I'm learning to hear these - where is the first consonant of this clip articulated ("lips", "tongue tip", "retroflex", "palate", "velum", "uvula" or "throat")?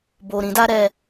lips